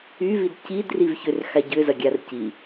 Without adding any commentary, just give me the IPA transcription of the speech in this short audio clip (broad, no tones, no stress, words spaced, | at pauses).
yvid cid rivçʏrxa ɟʏ zɐɡʲarci